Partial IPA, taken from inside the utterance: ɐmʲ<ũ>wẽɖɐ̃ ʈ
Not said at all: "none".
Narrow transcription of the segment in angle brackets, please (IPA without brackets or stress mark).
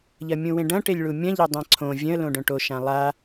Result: ũ